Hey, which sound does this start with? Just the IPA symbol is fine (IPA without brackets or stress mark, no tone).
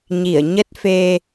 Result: ɲ